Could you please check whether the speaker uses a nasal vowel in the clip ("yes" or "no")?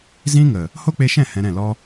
yes